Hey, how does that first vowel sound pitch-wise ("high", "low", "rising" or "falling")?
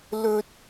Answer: high